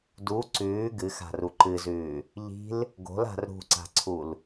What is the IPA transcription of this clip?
du ǀʉː ɡɨxa̤ru ǃɨzʉː | ʎi̤l | ɡo̤la̤r ɾṳǀa̤ǀʰul

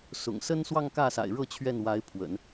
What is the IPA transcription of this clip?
sʊ̰˨˩ŋ sə˥nswɑ˥˧ŋ kä˥˩sa̰˨˩ɪ̯ɻɤ˥˧ t͡ɕʰɥɛ˥˩nwa˧˥ɪ̯ pʰwə̰˨˩˦n

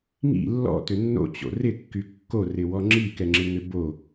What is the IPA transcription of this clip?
ŋḭ lːɔ̰tʏ nːo̰t͡ɕo̰ rɪkːy kːorɪwɔ ŋ͡ǁikɛŋ͡ǁɪŋʏ bo

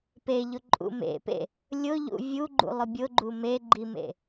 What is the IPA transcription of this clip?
peʎʊǃʼṵ mḛpḛ | lʲʊʎṵ vʲuɡ͡ǃṵlˠʊ bʲʊɡ͡ǃu meɡ͡ǃimḛ

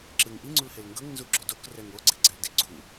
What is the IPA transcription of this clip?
ǁɯŋ ʔiŋ͡ǀulhel ŋɡɤŋnzu ɡ͡ǁodokrɛŋ oɡ͡ǀeɡ͡ǀɛldi ɡ͡ǀu

